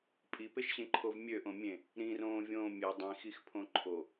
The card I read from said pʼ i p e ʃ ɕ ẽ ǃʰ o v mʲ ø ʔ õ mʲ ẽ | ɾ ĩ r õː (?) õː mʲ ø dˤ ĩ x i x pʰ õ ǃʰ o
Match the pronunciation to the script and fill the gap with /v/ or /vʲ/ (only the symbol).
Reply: vʲ